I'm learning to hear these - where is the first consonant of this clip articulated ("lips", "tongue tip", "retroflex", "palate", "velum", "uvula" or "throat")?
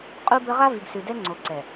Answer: uvula